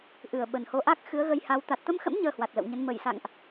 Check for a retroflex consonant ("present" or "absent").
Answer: absent